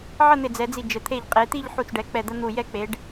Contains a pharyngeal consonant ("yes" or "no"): yes